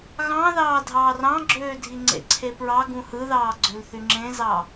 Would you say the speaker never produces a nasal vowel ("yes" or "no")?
no